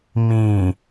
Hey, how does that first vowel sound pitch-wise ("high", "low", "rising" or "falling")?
low